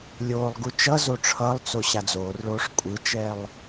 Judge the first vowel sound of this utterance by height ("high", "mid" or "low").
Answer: mid